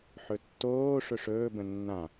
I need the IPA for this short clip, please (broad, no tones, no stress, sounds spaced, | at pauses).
ħ ɵ tː oː ʂ ɵ ʂ ɵː b ə̃ nː ã